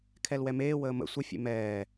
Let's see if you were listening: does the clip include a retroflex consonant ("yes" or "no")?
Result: no